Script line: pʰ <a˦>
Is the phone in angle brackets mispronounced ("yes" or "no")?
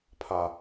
no